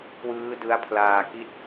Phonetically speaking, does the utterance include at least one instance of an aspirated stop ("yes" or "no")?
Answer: yes